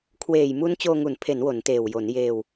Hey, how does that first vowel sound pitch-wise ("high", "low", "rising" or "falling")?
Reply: low